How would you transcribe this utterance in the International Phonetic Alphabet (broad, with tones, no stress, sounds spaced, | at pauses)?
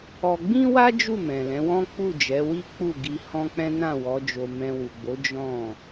ɔ˧ ɡ͡b ĩ˦ w a˦ d͡ʒ u˦˨ m ɛ̃˨ l ɛ̃˨˦ w ɔ̃˦ k͡p u˦˨ d͡ʒ ɛ˨˦ w i˦ k͡p u˦˨ ɡ i˧ h ɔ̃˦ k͡p ɛ̃˦ n ã˦˨ w ɔ˨˦ d͡ʒ o˧ m ɛ̃˧ w u˨ ɡ͡b o˨˦ d͡ʒ ɔ̃˦˨